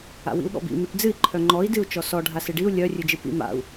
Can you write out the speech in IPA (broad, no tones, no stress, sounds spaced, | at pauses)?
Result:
a̰ w ḭ u̯ ɠ ɔ̰ b ḭ m i ʈ d͡z ɨ i̯ ǃʰ œ ŋ͡ǃ ɔ i̯ d ɨ u̯ t͡ʃ ɔ s ɔ ɖʱ a s ɨ ɖ i u̯ lʲ œ rʲ ɨ d͡ʒ ɨ p ḭ m a̰ u̯